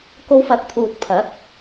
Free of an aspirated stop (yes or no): no